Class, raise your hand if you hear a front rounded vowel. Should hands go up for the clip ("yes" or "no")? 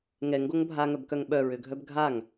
yes